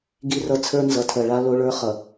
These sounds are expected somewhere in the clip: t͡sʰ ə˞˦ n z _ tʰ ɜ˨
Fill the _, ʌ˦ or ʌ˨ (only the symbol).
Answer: ʌ˨